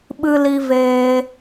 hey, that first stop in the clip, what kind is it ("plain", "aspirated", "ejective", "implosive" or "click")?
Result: implosive